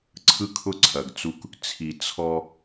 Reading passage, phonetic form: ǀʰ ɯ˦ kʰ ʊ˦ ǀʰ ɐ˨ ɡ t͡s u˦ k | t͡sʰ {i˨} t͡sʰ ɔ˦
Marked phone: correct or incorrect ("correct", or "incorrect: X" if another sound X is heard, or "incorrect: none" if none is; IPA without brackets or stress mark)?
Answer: correct